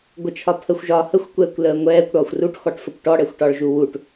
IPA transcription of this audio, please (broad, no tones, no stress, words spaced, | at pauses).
ɡʷət͡ʃʰɒpʰəxʷ ʒɒːhəxʷkʷɛːkʷ ləːŋʷɛːkʷ ɽɒːxʷruʈxɔʈfəkʷ ʈɔɽɛxʷʈɒɭʒu wuʈ